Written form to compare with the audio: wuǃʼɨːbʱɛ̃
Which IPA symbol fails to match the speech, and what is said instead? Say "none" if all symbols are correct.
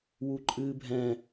none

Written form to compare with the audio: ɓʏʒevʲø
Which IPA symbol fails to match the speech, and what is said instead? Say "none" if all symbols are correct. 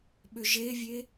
ø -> e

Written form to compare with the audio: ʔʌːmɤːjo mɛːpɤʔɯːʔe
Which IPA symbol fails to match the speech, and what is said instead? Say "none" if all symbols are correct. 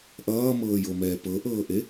ɯː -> ɤː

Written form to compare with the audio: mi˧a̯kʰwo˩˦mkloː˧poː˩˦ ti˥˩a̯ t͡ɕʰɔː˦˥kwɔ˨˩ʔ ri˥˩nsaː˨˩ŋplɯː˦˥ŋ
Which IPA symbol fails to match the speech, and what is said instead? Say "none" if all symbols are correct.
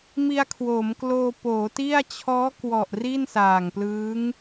none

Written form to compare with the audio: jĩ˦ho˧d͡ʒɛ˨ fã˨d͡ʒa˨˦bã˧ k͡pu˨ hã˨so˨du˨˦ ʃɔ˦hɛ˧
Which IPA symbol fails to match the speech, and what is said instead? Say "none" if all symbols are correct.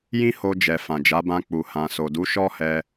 none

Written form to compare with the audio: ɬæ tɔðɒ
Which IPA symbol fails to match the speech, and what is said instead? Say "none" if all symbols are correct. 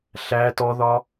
none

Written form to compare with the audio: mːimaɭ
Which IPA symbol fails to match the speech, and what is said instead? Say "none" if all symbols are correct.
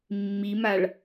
none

